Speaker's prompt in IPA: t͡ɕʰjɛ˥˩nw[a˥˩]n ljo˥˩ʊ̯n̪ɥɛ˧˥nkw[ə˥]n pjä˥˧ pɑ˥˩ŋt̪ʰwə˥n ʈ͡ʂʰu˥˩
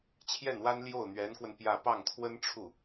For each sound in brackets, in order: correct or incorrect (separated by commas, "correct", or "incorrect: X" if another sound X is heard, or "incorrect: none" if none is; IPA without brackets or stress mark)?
incorrect: a˥, incorrect: ə˧